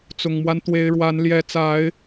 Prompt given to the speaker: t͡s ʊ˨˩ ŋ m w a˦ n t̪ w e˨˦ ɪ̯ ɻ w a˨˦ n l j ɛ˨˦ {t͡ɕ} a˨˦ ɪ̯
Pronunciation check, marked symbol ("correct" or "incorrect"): incorrect